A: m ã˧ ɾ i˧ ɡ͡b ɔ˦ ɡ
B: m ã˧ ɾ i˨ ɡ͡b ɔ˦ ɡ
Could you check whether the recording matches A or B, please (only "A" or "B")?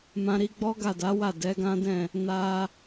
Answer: A